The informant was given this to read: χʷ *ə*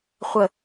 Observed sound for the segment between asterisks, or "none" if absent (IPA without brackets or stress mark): ə